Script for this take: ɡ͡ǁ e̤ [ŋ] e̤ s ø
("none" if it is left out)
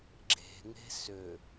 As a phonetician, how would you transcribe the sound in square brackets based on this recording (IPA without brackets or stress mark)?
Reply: ŋ